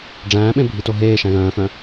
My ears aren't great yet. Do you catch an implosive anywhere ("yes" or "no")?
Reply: yes